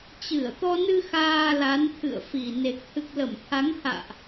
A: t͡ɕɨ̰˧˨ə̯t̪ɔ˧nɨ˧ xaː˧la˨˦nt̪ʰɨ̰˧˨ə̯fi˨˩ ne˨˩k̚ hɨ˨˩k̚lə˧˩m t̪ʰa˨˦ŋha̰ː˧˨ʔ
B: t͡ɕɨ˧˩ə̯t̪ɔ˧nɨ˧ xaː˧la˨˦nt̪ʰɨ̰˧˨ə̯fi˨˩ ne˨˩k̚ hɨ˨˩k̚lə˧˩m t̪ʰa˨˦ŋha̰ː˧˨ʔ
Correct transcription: B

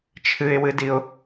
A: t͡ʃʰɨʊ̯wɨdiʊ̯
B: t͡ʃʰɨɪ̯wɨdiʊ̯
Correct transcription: B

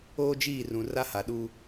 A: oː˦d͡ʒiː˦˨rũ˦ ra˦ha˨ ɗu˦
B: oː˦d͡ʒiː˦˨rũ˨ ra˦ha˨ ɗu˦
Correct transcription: B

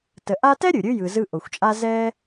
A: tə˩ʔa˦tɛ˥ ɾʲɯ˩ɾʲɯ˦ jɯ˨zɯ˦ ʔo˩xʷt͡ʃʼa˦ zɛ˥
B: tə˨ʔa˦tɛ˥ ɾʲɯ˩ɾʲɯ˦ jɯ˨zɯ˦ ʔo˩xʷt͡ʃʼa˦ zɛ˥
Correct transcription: B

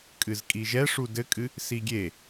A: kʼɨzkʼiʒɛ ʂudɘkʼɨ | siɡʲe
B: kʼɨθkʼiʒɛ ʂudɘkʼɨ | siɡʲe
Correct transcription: A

